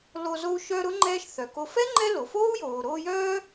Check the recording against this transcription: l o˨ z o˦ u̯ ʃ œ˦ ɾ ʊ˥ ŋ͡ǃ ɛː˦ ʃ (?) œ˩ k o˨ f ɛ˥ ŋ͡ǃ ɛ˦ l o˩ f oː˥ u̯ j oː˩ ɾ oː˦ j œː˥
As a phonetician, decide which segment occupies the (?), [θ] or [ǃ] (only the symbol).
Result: θ